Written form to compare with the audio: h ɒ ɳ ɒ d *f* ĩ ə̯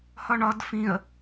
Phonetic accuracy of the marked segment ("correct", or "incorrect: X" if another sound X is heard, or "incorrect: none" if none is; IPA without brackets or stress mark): correct